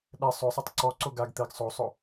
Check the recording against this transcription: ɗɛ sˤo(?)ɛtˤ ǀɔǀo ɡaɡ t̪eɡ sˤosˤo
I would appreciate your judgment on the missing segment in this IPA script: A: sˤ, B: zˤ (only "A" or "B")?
A